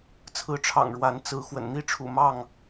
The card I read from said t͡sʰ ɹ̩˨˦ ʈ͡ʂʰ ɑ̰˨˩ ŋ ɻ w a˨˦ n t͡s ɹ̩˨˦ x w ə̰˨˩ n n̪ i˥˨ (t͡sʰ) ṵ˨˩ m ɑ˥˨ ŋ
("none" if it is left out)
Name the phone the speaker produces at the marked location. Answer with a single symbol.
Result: ʈ͡ʂʰ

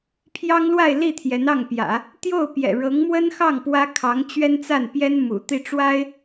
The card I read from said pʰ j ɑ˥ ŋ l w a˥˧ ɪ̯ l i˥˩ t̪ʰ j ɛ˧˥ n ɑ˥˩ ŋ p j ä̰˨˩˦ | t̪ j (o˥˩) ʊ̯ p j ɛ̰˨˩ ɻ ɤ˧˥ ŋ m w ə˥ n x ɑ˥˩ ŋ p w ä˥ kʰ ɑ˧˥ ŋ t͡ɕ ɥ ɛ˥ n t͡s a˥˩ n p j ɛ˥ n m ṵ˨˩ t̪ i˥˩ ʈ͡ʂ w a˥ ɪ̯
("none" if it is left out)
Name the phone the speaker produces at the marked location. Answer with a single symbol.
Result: o˥˩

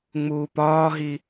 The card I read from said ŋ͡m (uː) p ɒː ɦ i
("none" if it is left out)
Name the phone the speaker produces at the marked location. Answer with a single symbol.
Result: uː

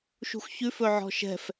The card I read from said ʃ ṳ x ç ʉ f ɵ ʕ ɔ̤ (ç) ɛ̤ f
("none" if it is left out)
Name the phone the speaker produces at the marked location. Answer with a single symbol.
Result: ʃ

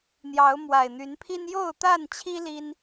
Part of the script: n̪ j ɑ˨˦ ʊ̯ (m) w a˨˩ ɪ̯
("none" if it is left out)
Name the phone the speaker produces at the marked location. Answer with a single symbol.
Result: m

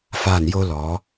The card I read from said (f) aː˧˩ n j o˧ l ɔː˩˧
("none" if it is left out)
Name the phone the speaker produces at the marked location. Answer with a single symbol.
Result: f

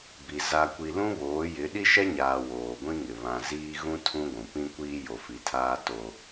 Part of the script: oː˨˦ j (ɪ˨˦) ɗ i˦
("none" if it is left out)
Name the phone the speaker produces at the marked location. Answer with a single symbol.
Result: ɪ˨˦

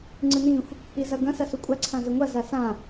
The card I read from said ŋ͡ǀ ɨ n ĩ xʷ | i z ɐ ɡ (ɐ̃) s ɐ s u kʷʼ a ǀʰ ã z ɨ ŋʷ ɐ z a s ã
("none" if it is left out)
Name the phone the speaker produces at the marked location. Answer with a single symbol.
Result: ɐ̃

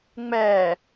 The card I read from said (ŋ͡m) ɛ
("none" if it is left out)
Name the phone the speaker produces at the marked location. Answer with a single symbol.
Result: ŋ͡m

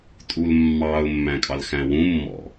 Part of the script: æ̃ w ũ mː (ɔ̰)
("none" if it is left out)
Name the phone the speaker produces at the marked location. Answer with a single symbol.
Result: ɔ̰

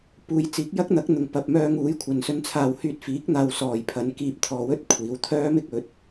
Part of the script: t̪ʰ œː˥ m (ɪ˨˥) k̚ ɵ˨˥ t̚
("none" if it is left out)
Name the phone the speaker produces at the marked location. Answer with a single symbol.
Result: ɪ˥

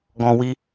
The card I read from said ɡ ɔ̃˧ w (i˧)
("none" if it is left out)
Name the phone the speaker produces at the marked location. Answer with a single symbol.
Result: i˧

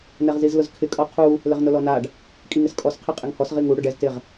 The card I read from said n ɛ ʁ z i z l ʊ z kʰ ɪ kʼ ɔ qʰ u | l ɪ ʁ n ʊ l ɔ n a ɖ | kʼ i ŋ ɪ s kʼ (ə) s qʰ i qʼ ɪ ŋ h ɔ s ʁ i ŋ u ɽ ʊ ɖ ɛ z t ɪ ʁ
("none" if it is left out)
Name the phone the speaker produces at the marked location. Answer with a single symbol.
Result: ɔ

